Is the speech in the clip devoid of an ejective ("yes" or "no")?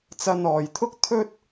yes